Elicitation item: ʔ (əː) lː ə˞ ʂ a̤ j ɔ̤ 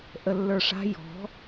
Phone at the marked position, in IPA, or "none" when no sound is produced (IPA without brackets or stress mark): ə